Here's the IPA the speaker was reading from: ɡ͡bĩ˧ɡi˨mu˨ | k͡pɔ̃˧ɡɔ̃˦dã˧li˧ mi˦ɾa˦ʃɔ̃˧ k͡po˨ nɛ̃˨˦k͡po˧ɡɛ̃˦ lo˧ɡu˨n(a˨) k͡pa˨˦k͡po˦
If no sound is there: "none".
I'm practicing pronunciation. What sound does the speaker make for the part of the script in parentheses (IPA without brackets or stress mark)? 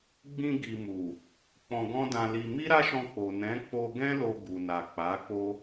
a˨